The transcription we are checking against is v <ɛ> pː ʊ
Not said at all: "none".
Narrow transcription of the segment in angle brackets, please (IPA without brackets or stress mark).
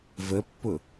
ə